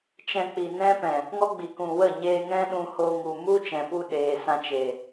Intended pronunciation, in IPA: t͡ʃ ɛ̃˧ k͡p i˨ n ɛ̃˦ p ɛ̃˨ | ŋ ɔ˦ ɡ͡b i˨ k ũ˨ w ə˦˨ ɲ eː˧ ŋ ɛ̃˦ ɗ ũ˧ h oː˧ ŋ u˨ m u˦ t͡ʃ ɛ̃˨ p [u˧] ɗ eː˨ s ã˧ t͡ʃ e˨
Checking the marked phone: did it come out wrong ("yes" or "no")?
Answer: no